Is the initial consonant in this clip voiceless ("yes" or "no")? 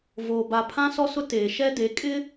no